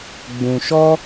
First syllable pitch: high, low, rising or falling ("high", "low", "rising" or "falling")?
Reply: low